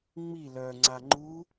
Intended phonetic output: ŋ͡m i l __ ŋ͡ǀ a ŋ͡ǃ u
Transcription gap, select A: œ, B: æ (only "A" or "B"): A